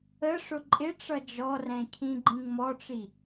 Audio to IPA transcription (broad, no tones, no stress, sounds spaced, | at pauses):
ə ʂ ʊ ǃʼ ɪ ʈ͡ʂ ʌ d͡ʒ ɔ r ɛ̃ cʰ ĩ ɡ͡ǃ ĩ ŋ m ɔ ʈ͡ʂ i